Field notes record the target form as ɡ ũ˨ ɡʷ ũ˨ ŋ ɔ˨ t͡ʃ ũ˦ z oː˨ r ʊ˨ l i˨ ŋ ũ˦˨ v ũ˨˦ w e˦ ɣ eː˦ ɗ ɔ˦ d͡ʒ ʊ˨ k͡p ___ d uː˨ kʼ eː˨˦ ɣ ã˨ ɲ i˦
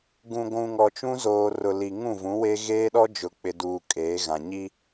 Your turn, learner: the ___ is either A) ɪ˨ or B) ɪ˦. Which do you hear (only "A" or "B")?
A